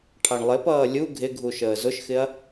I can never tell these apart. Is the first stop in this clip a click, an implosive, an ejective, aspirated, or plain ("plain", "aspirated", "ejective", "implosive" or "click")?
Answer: aspirated